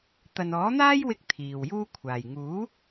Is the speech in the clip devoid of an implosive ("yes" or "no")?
yes